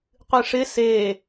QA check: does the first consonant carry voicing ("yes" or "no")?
no